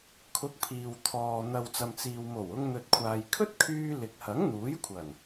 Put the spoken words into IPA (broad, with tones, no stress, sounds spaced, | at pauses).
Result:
kʰ ʊ˨˥ k̚ pʰ iː˨ w t̪ʰ ɔː˨ n̪ ɐ˨ w t͡s ɐ˨ m t͡s iː˨ w m o˨˩ w ʊ˧ ŋ n̪ ɵ˨ t̚ kʷʰ aː˨ j kʰ ɵ˥ t̚ kʰ yː˧ l ɪ˨ k̚ h ɐ˨˥ ŋ n̪ uː˨˥ j kʷʰ ɐ˨˩ n